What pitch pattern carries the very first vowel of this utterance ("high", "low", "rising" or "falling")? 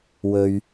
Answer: low